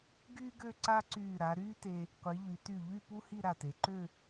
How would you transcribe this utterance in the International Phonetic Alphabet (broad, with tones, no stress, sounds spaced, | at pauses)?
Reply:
ɡ yː˥ ɡ ø˥˧ ǀ a˥ ǀ yː˧˩ ɾ a˩˧ ɾ yː˥ t e˧ | qʷ i˩˧ ʎ y˩˧ t y˧˩ ʎ y˥˧ p u˥ h i˥˧ ɾ a˧˩ t e˩˧ ǃ ø˥˧